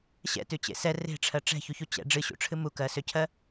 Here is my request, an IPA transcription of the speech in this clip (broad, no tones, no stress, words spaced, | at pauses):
ɕɛ̰tʉt͡ɕḛ sɛ re̤ʈ͡ʂʰɜ ʈ͡ʂɛ̤çuçu t͡ɕɛ̰ ɖ͡ʐɨɕṵʈ͡ʂʰɨ mukɜsøcʰɜ